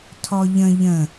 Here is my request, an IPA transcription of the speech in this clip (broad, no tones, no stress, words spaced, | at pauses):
tʰɔʎə̃ ʎə̃